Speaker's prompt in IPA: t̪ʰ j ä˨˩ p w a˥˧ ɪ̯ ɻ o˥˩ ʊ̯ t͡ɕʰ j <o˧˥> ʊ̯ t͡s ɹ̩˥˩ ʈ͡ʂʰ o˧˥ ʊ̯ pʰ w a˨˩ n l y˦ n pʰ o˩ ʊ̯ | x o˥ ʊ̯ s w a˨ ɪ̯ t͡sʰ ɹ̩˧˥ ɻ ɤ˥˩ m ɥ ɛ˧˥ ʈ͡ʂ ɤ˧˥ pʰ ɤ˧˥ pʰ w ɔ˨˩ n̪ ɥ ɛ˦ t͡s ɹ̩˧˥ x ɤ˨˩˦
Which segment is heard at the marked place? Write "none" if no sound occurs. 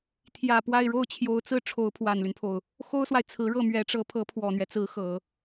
o˧˥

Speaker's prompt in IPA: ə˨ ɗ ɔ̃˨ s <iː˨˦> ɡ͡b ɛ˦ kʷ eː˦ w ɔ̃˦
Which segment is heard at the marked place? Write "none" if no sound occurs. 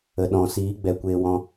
iː˨˦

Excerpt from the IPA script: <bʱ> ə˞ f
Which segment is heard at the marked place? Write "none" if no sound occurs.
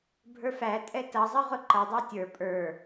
bʱ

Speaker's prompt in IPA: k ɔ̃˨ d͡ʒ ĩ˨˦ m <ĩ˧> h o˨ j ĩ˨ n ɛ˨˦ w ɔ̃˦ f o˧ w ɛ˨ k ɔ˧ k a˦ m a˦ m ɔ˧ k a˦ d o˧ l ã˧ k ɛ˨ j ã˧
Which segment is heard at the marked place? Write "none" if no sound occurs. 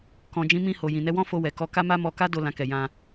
ĩ˧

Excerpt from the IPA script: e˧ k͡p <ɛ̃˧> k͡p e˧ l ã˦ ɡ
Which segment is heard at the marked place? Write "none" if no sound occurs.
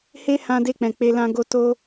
ɛ̃˨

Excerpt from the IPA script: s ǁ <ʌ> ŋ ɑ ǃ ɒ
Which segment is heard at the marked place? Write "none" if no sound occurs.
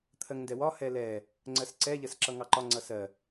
ʌ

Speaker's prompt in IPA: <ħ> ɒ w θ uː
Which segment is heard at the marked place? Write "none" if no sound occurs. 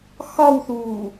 x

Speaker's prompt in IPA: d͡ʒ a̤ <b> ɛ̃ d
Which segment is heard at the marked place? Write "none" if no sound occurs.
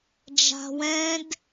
w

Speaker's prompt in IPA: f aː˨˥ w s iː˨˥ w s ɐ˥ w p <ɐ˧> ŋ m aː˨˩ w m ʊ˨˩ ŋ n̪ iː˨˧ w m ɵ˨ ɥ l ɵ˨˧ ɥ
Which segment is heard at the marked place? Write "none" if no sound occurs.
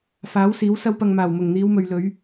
ɐ˧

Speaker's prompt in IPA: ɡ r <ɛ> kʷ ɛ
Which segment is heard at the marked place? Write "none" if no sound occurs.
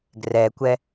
ɛ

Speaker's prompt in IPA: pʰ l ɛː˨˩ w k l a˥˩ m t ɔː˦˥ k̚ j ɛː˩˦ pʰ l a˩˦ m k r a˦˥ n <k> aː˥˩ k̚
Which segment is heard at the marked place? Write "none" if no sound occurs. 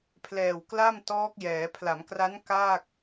k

